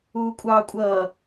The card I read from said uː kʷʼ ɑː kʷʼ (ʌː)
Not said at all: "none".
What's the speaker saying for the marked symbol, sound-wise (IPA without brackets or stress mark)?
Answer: ʌː